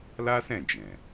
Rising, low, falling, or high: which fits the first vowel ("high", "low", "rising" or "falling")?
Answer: high